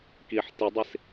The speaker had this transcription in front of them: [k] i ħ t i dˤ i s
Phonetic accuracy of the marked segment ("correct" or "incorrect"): correct